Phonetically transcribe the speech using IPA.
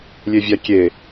lʲ e vʲ a kʲ e

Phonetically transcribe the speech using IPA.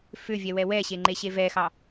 f ʏ vʲ ɛ w ɛ w ɛ ɕ e ŋ͡ǃ e ɕ e v ɛ x ɑ

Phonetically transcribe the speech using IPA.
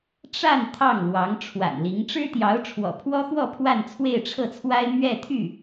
ʈ͡ʂ a˥˧ n t̪ʰ ɑ˥˩ ŋ l w ɑ˧˥ ŋ ʈ͡ʂʰ w a̰˨˩ n l i˧˥ ŋ ʈ͡ʂ ɻ̩˥ t̪ j ɑ˧˥ ʊ̯ ʈ͡ʂʰ w ɔ̰˨˩ pʰ w ɔ˥ x w ɔ˥˧ pʰ w a˥˧ n t͡sʰ w e˥˧ ɪ̯ ʈ͡ʂʰ ɤ˥˩ t͡sʰ w a˥ ɪ̯ m ɥ ɛ˥˧ t̪ʰ y˥˩

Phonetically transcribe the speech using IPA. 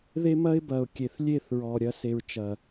ð e˦ m ɐ˦ ɪ̯ b ɐ˨ ʊ̯ kʲ e˨ θ lʲ e˦˨ θ ɹ ɔ˨ ɾʲ ɐ˧ s e˨ ɹ t͡ʃ ɐ˨

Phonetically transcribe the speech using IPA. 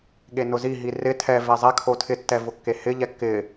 ɠ e n ʊ z i ɦ i r ɪ tʰ ɛ v e zˤ e kʰ o tʰ ɪ tː ɛ v ʊ kː e h ɪ ʎ ɛ kː ɪ

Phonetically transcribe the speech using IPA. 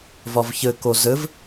v ɒ v ç ɘ k o z ɘ v

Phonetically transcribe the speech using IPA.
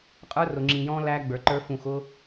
qʼ ə˞˦ r ʊ˨ ŋ͡ǁ ĩ˨ j ɔ̃ː˦ l æ˦ ɡ͡b ə˞˨ ǃ ə˞˦ f ũ˨ x ʊ˦

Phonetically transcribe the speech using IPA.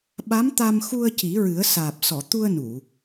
ɓ a˧˥ m t̪ a˧ m x u˧ ə̯ c i˨˩˦ ɹ ɨ˨˩˦ ə̯ s aː˨˩ p̚ s ɔ˨˩˨ t̪ u˧ ə̯ n u˨˩˨

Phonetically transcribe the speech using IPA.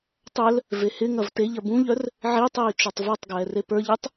tˤ œ l | v e h ɪ ŋ ɐ v t e ʎ ɐ b ũ ʎ œ r | ʕ i tˤ iː t͡ʃ œ tˤ v ə˞ tˤ ɡ ɛː r e p ə˞ ʎ i tˤ

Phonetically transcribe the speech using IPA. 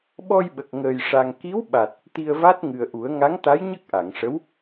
ɓ ɔ˧ j ɓ ə˨˩ k̚ ŋ əː˨˩ j ʂ a˧ ŋ k i˧˥ w ɓ a˨˩ t̚ | t̪ i˧ ə̯ v a˦˥ t̚ ŋ ɨ˨˩ ə̯ ʔ u˨˩˦ ə̯ ŋ a˧˥ ŋ t̪ a˧˥ j ɲ ə˦˥ k̚ ʔ a˨˩˨ ŋ ʂ ə˧˥ w

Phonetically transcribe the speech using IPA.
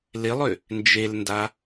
l ɪ lˠ ʏ | n d͡ʒ e l n d a

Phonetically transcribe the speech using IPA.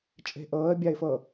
t͡ʃʼ e̤ ʔ ɤː ə̯ bʲ a ɪ̯ f ɤ

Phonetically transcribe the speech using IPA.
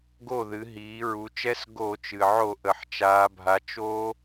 ɡ o˥˩ ð ɨ˩˧ ɦ iː˩˧ ɹ u˩˧ t͡ʃ ɛ˦˥ s ɡ o˧˩˧ t͡ʃ ɨ˩ ʕ o˧˩˧ ʔ ə˩ ħ t͡ʃ aː˩˧ bʱ a˩˧ t͡ʃ o˦˥

